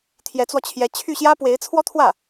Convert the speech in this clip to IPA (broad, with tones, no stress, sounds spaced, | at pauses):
t̪ʰ j ɛ˧˥ t͡s w ɔ˧ t͡ɕʰ j ɛ˧˥ t͡ɕʰ y˥˩ ɕ j ä˥ p w e˧˥ ɪ̯ t͡sʰ w ɔ˥ t̪ʰ w ä˥˩